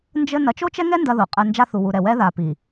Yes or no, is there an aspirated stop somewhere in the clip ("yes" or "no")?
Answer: no